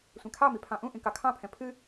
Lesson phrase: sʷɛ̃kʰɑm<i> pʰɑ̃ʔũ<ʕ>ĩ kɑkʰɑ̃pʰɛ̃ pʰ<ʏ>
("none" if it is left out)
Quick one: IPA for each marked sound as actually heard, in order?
i, ʔ, ɨ

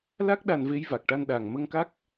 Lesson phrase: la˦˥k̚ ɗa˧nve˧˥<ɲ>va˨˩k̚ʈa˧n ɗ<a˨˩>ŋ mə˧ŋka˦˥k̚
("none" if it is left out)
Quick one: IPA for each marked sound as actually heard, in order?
j, a˨˩

